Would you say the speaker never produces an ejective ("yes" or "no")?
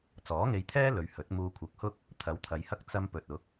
yes